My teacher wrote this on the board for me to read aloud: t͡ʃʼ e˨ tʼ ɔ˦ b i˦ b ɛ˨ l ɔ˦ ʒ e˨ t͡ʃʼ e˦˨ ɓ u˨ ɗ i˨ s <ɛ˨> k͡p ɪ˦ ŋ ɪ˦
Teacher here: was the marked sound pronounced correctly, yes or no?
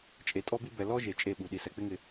yes